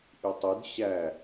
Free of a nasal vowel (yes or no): yes